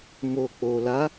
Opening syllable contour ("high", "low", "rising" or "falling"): low